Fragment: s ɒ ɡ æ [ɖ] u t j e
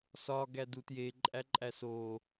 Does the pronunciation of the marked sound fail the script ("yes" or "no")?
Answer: yes